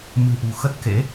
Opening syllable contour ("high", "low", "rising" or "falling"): low